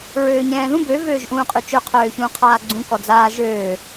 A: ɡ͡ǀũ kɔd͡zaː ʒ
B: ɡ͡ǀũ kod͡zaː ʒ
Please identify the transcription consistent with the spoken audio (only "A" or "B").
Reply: A